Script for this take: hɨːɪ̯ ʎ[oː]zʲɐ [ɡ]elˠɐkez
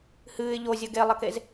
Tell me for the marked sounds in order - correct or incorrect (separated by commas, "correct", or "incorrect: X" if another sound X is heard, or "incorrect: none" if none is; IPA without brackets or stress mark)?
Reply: incorrect: o, correct